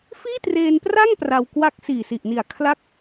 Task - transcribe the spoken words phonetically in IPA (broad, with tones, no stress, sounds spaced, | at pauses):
f iː˥˩ t r eː˧ n p r a˥˩ ŋ p r a˧ w k w a˥˩ k̚ s iː˨˩ s i˨˩ ʔ n i˨˩ a̯ kʰ l a˦˥ k̚